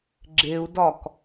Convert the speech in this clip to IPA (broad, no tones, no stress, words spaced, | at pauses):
ɡ͡ǁeu̯dɒk